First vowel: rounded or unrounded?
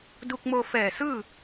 rounded